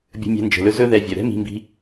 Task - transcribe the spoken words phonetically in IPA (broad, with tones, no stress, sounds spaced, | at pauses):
bʲ ə̤˧ mʲ ɛ̤˧ n d͡ʒ ə̤˩ l ɵ˧ z ɵ˥ ð ɛ˧ vʲ œ˩ ɾ ɛ̤˥ m i̤˧ m b i̤˧